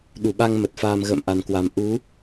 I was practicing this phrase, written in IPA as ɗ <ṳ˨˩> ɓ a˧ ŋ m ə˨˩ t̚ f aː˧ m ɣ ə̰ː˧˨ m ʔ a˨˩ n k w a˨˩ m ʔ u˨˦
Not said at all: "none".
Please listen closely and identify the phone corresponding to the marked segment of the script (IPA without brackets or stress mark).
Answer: u˧˩